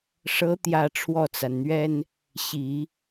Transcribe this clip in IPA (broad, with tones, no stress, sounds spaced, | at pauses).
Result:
ʂ ɤ˧˥ t̪ j ä˨˩ ʈ͡ʂʰ w ɔ˥˩ t͡s a˩ n n̪ ɥ ɛ˥ n | ɕ i˨˩˦